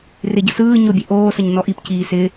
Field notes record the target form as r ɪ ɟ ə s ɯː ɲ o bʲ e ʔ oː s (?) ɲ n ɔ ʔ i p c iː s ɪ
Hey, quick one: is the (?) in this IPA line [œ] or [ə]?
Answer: ə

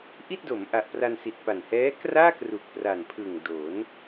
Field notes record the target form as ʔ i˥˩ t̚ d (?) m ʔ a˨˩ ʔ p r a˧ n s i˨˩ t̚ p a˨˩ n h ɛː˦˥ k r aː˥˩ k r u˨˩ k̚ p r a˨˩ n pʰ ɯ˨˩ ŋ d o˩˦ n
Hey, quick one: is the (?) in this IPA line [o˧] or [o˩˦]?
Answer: o˩˦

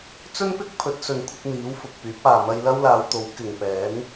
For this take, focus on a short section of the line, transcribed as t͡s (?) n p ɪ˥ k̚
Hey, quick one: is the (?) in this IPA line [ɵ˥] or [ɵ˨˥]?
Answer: ɵ˥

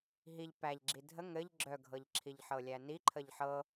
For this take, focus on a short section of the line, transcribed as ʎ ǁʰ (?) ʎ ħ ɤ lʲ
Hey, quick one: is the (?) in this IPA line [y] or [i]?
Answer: i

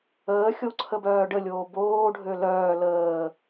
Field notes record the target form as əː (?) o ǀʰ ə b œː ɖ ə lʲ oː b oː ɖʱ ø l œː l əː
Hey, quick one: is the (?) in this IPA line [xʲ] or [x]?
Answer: xʲ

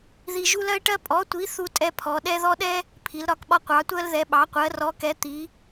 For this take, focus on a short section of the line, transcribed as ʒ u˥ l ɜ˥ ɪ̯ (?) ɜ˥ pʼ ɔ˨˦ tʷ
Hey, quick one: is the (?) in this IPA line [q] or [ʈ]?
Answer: ʈ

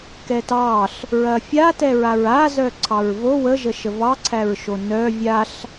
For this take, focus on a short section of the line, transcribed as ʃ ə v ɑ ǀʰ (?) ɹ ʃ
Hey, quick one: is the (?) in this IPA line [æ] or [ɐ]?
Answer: æ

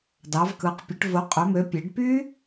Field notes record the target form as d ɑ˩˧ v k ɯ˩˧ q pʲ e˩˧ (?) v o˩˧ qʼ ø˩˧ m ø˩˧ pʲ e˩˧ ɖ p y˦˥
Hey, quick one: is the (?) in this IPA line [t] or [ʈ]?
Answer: ʈ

